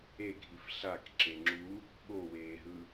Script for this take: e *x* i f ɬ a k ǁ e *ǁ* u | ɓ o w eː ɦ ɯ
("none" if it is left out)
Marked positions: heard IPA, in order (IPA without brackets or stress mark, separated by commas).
ɡʱ, ŋ͡ǁ